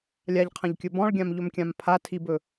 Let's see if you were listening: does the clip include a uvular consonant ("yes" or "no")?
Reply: yes